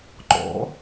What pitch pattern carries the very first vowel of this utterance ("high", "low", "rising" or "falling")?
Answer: rising